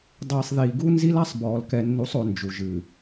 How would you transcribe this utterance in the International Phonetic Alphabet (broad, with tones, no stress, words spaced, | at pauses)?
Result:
dˤiː˨sˤðiː˨ɡu˦nzi˦l a˦sˤbɔː˨l kɛ˨nːu˨˦sˤo˨ nd͡ʒu˨ ʒɨ˨